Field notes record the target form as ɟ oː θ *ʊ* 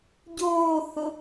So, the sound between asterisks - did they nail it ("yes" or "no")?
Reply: yes